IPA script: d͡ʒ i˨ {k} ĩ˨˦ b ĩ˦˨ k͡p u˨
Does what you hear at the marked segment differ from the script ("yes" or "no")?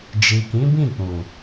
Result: no